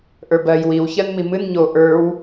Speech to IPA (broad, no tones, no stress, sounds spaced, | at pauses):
ʔ ə˞ b ɜ j w i w ç ɜ n m i m ɨ n ɲ o ʔ ə˞ w